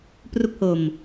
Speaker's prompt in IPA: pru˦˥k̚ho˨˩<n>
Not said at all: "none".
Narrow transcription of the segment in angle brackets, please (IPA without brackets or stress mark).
m